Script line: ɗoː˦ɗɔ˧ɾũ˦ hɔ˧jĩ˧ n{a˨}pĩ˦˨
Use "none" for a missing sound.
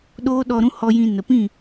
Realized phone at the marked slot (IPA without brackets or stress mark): ə˨